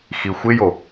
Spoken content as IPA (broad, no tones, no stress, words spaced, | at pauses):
xixʷɪjo